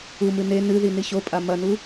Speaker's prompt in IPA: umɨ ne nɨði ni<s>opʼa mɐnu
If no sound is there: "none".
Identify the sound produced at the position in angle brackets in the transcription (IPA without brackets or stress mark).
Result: ɕ